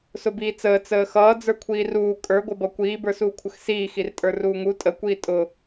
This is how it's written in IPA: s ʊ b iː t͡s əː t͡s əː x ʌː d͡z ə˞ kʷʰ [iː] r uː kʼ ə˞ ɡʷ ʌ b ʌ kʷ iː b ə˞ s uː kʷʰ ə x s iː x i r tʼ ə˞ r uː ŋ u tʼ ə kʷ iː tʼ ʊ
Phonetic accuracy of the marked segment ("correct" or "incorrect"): correct